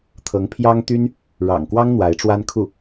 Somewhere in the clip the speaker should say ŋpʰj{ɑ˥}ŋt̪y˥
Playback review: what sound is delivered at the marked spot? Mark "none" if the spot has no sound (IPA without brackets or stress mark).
ɑ˥